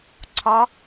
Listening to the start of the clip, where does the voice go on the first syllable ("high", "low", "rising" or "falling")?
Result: rising